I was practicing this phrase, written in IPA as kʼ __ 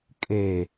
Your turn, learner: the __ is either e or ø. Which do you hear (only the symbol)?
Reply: e